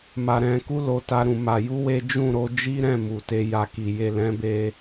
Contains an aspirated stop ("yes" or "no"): no